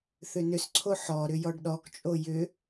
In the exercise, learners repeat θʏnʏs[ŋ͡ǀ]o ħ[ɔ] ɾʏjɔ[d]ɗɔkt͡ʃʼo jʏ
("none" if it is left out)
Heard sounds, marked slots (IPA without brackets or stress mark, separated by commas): ǀʰ, ɔ, ɖ